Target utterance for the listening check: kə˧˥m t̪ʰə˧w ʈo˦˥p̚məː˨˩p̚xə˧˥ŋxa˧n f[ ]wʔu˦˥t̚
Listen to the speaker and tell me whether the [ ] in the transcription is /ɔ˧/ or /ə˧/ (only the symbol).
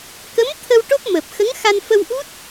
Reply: ə˧